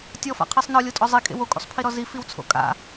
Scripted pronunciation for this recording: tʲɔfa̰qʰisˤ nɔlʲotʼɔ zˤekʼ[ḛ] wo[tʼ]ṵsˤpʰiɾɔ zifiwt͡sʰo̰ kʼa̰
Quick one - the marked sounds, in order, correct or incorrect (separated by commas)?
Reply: correct, incorrect